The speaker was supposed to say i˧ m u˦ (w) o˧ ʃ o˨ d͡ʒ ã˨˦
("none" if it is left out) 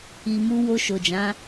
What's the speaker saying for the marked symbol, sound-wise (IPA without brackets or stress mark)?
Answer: w